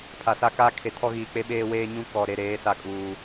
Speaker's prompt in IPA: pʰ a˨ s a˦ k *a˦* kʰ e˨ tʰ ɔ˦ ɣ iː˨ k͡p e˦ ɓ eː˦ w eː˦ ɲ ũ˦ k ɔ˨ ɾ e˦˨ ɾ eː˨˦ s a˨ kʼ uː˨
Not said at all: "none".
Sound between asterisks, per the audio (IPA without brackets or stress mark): a˦